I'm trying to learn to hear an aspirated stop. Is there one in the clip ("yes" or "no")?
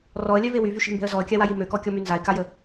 no